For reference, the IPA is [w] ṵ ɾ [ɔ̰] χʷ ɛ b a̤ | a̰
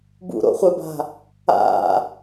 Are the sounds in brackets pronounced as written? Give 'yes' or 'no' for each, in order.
no, no

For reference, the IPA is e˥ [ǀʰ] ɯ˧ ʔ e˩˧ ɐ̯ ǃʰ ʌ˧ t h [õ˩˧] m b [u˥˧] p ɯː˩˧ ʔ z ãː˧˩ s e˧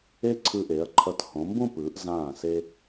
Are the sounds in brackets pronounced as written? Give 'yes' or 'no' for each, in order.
yes, yes, no

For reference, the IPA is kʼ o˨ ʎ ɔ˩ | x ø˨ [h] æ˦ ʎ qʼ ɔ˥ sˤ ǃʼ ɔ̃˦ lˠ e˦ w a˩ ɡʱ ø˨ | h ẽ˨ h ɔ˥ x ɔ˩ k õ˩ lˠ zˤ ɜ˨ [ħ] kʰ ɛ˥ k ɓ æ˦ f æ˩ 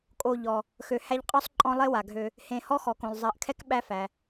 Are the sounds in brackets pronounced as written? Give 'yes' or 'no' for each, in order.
yes, no

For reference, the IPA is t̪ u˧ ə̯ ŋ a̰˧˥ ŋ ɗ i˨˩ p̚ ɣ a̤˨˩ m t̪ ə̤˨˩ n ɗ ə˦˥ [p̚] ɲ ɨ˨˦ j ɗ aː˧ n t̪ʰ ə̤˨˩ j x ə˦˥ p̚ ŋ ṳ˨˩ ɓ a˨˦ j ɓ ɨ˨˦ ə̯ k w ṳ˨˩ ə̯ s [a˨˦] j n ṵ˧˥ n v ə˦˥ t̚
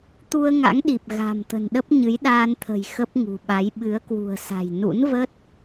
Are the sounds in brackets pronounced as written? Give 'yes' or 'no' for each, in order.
yes, no

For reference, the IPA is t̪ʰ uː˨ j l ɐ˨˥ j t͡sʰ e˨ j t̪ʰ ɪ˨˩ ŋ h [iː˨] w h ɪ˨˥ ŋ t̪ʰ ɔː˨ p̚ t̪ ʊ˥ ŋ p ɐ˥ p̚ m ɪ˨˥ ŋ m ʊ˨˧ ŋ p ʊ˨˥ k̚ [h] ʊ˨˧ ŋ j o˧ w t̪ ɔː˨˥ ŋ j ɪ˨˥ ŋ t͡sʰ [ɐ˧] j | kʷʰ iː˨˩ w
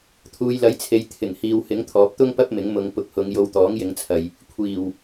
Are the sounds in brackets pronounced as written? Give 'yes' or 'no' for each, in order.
yes, yes, no

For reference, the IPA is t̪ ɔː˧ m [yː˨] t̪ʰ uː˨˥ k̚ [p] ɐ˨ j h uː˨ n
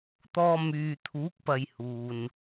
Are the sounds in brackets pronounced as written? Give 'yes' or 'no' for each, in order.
yes, yes

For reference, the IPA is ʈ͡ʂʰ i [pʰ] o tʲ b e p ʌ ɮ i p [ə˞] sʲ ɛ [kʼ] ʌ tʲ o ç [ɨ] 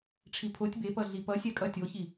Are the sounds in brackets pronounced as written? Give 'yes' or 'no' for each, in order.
yes, no, yes, no

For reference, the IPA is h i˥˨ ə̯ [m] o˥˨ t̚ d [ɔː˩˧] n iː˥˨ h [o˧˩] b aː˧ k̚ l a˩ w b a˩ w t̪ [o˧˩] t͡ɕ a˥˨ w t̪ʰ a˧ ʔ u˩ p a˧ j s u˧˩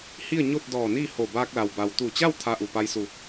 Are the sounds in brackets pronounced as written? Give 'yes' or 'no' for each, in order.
no, no, yes, no

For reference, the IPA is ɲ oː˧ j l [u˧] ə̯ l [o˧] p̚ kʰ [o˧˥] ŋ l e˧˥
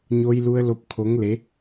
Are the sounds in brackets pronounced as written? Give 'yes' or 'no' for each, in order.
yes, yes, yes

